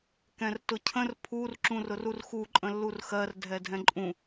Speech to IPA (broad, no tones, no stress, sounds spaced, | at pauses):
k ɛ̃ r t ʊ cʰ ə̃ r pʰ u r ǁ ũ r ʊ r u r x u ǃʼ ə̃ lː u r x ɜ r dʱ ɛ dʱ ɛ̃ ǃʼ ũ